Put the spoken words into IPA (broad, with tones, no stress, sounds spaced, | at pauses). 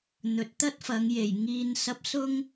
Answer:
n̪ ɵ˨ t̚ t̪ ɐ˥ t̚ f ɐ˨˧ ŋ j e˨˩ j ŋ iː˨ n s ɐ˨˥ p̚ s ʊ˥ ŋ